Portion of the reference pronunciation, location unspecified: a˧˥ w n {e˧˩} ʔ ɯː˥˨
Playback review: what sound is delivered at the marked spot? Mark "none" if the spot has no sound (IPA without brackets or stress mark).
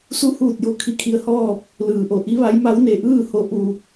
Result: e˧˩